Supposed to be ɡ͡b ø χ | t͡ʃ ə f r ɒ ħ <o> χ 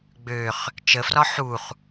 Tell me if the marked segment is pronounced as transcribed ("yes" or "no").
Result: no